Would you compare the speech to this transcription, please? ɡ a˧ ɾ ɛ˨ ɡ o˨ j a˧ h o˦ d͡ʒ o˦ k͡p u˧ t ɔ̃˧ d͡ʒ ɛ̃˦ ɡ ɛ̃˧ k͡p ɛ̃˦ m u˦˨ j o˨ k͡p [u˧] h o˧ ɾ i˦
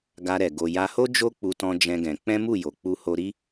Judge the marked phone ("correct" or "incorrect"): correct